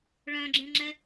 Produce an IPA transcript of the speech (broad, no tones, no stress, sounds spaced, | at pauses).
ɭ œ̃ ɡ͡ǁ ẽ ŋ͡ǁ ɛ